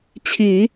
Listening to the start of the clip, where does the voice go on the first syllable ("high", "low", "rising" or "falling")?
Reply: low